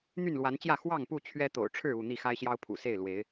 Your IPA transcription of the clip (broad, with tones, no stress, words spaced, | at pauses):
n̪y˥˨nlwa˨˦nt͡ɕjä˥˨ xwɑ˥˨ŋpu˥˨ t͡ɕʰɥɛ˦t̪o̰˨˩ʊ̯ ʈ͡ʂʰɻ̩˥˨u˥˨ n̪i˥˨xa˦ɪ̯ɕjɑ˦ʊ̯ pʰṵ˨˩se˥˨ɪ̯ lwe˨˦ɪ̯